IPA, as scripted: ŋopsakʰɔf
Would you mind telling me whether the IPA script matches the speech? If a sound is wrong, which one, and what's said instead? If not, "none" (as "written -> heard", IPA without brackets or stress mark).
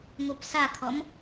f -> m